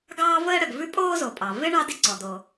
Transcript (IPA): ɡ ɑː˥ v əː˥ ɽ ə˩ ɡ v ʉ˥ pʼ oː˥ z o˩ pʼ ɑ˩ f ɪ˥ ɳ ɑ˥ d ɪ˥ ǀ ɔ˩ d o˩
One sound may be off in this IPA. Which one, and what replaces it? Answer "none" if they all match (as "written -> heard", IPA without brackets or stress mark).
f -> v